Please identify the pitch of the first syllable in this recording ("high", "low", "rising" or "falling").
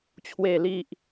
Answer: low